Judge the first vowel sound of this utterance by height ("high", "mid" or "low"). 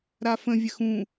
low